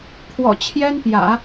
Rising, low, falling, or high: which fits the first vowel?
low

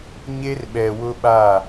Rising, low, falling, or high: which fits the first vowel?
high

